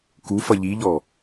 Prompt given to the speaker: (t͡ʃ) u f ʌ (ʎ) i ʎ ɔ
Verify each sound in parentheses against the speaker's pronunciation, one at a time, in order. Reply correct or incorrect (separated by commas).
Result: incorrect, correct